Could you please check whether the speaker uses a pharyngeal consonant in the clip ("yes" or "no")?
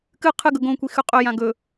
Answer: no